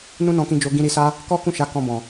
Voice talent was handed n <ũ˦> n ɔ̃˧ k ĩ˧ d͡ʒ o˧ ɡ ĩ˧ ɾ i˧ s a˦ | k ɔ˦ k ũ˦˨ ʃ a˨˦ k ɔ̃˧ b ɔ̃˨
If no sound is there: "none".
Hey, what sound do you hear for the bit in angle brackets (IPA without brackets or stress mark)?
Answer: ũ˦